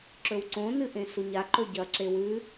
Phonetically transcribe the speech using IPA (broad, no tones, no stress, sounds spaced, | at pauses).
ǁ ɵ w ǀ õ n ɨ ʔ ẽ s u ɲ a ǃ ɵ ɟ ɐ ǁ e w ʉ